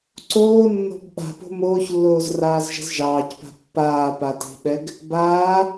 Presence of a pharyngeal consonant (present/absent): absent